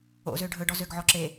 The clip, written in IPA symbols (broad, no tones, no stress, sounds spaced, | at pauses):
o̰ z ø ɖʱ ɵ ɖ ɔ z ø ɡ ʕ ɔ ǁ e